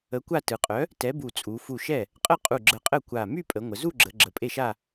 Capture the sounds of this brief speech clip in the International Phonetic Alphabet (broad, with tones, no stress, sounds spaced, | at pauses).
ə˨˥ kʷ a˥˧ t ɯ˩˧ qʼ œ˨˥ | t ɛ˨˥ b u˧˩ t͡sʼ u˩˧ f u˧˩ ʃ ɛ˥˩ | qʼ ə˥˧ qʼ u˧˩ ɡ͡ǁ ə˧˩ qʼ ə˥˩ kʷ a˧˩ m y˥˧ pʼ ə˩˧ ŋʷ ə˩˧ z u˥˧ ɡ͡ǁ ə˩˧ ɡ͡ǁ ə˩˧ pʼ e˥˩ ʃ a˥˧